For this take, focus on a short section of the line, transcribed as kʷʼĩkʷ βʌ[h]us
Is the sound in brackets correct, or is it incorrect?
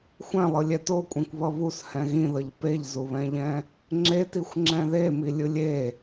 incorrect